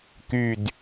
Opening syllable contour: low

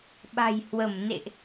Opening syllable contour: low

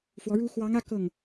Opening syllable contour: rising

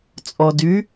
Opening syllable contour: low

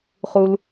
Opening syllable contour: low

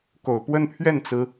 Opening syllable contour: low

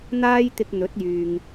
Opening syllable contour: high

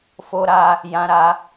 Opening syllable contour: high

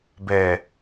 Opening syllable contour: low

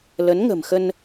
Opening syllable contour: rising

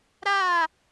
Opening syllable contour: falling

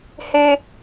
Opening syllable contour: high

